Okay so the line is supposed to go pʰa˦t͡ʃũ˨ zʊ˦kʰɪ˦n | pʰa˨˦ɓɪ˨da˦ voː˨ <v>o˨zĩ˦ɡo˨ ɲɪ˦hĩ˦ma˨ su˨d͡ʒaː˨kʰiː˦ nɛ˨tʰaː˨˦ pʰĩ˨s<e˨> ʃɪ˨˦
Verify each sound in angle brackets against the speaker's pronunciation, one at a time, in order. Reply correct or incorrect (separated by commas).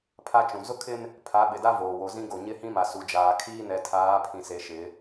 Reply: incorrect, incorrect